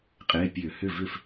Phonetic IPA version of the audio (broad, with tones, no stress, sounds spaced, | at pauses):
qʼ ɪː˩˧˩ pʲ ø˧˩˧ h ʏ˥˩ v ʏ˥˩ f